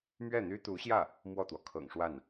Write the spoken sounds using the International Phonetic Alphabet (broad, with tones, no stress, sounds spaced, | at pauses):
m ɥ ɛ˥˩ n̪ y˥ t̪ u˧˥ ɕ j ä˥˩ | m w ɔ˥˩ t̪ w ɔ˩ kʰ ɤ̰˨˩ ŋ ʂ w a˥˩ n